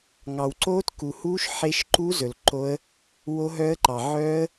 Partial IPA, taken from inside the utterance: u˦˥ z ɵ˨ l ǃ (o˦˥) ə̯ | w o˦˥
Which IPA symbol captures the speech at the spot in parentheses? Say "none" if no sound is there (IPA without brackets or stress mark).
o˦˥